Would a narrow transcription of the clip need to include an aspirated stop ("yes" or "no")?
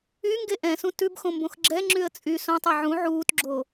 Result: no